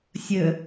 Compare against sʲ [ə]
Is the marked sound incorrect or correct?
correct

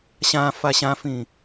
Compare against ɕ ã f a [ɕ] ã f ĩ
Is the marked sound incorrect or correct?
correct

